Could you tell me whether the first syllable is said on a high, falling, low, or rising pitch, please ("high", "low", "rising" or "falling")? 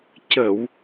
low